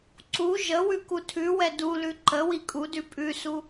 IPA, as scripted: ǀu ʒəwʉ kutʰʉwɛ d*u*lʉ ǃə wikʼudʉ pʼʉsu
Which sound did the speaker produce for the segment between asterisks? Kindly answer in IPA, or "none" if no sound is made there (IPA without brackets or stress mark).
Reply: u